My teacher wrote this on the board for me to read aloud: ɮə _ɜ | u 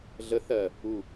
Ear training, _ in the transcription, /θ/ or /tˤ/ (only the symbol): θ